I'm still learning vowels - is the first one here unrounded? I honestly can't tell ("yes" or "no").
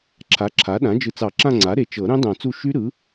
yes